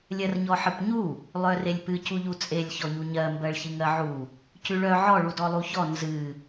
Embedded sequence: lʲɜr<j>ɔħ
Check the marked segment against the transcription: incorrect: ɲ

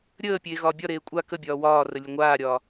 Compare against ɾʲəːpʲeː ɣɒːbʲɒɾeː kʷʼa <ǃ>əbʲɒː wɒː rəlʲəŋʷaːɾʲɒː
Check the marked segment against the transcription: incorrect: k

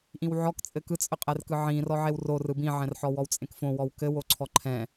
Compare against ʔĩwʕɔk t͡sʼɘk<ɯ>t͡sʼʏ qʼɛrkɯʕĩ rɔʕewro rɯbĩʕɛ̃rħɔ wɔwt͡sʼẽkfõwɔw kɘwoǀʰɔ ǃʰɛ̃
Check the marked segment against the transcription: correct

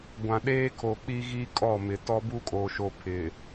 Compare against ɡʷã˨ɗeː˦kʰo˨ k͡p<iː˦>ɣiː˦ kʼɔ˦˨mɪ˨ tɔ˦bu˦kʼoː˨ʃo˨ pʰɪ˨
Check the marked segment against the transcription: incorrect: i˦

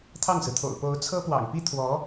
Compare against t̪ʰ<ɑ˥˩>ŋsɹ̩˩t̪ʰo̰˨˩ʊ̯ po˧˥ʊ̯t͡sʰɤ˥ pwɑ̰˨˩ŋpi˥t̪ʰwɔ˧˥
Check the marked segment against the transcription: correct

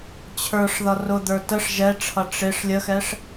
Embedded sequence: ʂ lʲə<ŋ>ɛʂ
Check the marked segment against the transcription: incorrect: x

